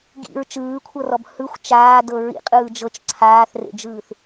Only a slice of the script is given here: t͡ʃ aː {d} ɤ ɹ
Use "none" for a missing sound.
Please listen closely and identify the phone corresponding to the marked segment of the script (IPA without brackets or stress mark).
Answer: d